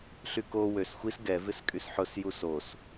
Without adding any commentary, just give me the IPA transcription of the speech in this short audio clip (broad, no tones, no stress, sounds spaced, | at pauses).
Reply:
ɬ y k o w ø s xʷ i s ɡ ɛ v ɪ s kʼ y s ħ ʊ s j u s o s